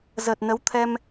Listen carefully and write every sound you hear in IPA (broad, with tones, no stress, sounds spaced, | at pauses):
z əː˨˩ t̚ n ə˨˦ w t̪ʰ ɛ˧ m